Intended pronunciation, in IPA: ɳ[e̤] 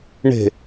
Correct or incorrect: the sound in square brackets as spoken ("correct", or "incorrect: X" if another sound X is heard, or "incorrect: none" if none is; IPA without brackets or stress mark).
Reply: correct